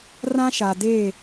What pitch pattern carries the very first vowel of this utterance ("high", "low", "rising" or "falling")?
high